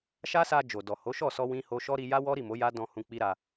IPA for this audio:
ʃ a˦ s a˧ d͡ʒ o˨ d ɔ˨ h o˨˦ ʃ ɔ˦˨ s ɔ˧ w ĩ˦ h o˧ ʃ ɔ˦ ɾ i˧ j a˦ w ɔ˦ ɾ i˦˨ m o˨˦ j a˦ d ɔ̃˧ h ũ˧ k͡p i˦ ɾ a˧

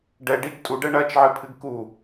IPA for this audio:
ɖ ɛ ɖ i ɡ tʼ u ɖ ɛ ɳ ɐ t͡ʃ ʕ ɨ pʰ ɨ ɡ k u

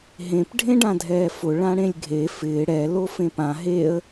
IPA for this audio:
ɦ ẽ p ɖʱ ẽ ɖ ã dʱ ɛː f ʊ ɭ ã ɽ ẽ lʲ ɡʱ e f ɪː ɽ ɛ l o f ẽ p ã ɦ e ə̯

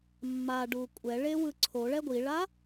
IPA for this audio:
mː a ɖ u kʷʼ ɛ ɭ e w ɯ ǀʰ o ɭ ɛ ɡʷ i ɭ a

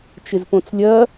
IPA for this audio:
t͡ʃ ɪ z p õ t͡s lʲ ɐ

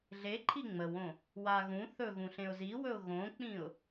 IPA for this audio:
ɮ e ǃʰ i ŋ͡m ə w õ | w a ɣ ũ θ ɵ ɣ ũ ɬ ẽ ʊ̯ z i w ɵ ʊ̯ ɣ õ k͡p ĩ ʊ̯

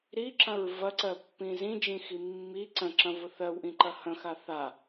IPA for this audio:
ɾ i ǁ ɐ̃ ɹ v ɐ ǀ ɜ pː ĩ z ĩ d͡ʒ ĩ x i mː i ǀ ə̃ ǁ ɐ̃ v ʊ θ ɜ w ʔ ĩ ǃ ɐ h ə̃ x a θ a

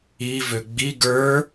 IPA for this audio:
i v ø ɡ͡b i ɡ ə˞

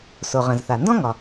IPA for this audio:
s o˩ ʁ ə̃˩ z θ a˩ n d ɔ̃˥ ŋ ɒ˩

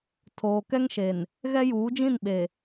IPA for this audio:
tʰ oː˨ k ɛ˦ ŋ ʃ e˨ n | ɣ ɛ˦ j uː˨˦ d͡ʒ ĩ˦˨ n ɓ e˨

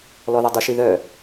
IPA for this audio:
l ɔ ð ɒ dˤ u ʃ i ð œ

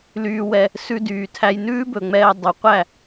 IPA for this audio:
l yː˧ w ɛ˧ | s ʉ˧ d yː˨ tʰ æ˧ j n ʉː˦ b ɵ˨ ŋ͡m ɛː˧ dˤ y˨ qʷ æ˦˨

